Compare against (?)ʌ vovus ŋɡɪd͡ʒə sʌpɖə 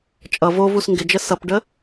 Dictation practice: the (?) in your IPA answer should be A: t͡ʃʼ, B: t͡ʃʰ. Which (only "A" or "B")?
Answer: A